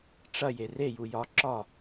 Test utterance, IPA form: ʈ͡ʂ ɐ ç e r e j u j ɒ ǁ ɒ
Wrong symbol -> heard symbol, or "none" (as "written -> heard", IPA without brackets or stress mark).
ç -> j